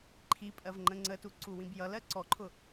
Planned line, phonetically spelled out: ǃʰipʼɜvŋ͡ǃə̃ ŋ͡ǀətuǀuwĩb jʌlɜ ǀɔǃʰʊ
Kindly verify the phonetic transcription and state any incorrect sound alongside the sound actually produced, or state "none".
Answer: none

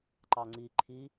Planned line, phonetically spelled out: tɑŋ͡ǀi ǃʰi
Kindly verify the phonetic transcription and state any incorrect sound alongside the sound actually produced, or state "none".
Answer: t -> ǃ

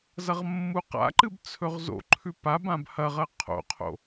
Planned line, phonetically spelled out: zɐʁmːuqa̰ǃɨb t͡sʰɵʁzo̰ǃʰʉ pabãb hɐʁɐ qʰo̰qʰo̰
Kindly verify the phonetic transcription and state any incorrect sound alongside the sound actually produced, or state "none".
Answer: none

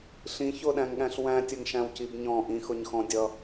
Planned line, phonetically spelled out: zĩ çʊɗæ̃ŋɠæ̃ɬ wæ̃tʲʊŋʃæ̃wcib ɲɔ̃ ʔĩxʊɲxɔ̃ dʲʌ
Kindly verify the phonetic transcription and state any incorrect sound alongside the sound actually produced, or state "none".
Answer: z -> ɬ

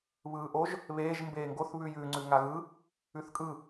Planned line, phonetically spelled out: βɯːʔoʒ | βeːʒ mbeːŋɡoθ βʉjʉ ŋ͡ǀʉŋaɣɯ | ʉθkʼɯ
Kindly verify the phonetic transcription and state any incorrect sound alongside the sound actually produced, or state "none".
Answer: none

